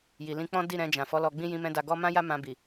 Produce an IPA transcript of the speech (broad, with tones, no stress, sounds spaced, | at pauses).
j i˨ l ĩ˧ k͡p ɔ̃˦ d i˦˨ ɾ ɛ̃˧ d͡ʒ ã˨ f ɔ˨˦ l ɔ˧ ɡ͡b ĩ˦ j ĩ˧ m ɛ̃˧ d a˧ ɡ ɔ˦ m ã˦ j a˦ m ã˧ b i˨